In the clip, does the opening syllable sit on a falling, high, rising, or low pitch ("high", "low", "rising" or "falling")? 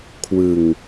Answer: low